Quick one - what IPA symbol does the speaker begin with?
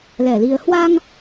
l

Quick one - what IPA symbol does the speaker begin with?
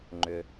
ŋ͡ǃ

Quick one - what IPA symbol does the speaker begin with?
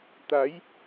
t̪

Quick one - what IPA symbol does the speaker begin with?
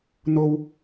n̪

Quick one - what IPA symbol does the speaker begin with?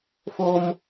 f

